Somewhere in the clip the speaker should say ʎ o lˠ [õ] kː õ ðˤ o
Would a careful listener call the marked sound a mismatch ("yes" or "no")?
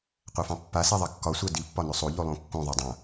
no